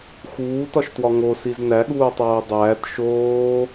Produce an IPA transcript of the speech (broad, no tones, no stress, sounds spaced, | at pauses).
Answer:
x uː t ɒ ʃ t w ɒ ŋ o s i z n æ ɠ uː tˤ oː dˤ æː t ʃ oː